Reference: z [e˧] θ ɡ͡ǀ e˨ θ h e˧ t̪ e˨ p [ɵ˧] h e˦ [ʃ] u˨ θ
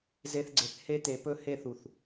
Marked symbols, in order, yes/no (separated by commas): yes, yes, no